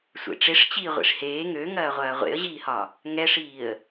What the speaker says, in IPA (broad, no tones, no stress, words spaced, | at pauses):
sʷḛʈ͡ʂeʂ t͡ɕiːʁʷḭʂheː ŋøŋɐːʁʷɐː ʁʷḛə̯ʑiːhɒ | ŋɛʂiːə̯